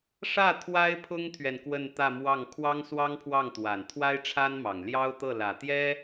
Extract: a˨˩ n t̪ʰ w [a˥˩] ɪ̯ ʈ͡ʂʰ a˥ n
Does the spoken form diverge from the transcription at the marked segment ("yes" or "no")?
yes